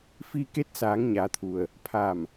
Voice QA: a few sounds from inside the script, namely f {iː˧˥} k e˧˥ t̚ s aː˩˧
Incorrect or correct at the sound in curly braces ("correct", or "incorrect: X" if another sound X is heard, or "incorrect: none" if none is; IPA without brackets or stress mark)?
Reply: incorrect: iː˧